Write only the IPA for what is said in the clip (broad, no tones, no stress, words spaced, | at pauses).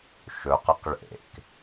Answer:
ʃɵqəq ɭḛk